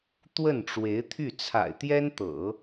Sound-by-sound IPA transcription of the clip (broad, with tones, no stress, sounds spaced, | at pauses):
t̪ w ə˥˩ n ʈ͡ʂ w e˧˥ ɪ̯ t̪ʰ y˥˩ t͡sʰ a̰˨˩ ɪ̯ t̪ j ɛ˥ n t̪ ɤ̰˨˩˦